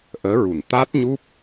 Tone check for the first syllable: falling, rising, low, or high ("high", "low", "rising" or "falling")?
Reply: rising